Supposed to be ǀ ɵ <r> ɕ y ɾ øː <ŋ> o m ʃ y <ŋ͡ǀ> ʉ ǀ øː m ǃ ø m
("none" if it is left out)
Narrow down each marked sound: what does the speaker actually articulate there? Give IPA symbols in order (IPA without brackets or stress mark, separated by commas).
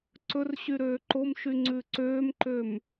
r, ǃ, ŋ͡ǀ